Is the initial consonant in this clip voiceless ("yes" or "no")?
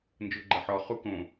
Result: no